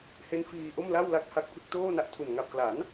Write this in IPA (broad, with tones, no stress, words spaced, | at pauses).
he˦˥n fiː˧ ʔo˥˩mla˥˩w la˥˩k̚ha˥˩k̚pʰɯ˥˩k̚ toː˥˩na˦˥ʔtʰu˨˩n ŋa˨˩p̚kla˩˦n